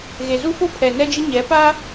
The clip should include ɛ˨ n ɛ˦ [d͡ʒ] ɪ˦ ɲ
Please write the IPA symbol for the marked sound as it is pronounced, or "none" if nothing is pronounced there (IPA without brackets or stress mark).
d͡ʒ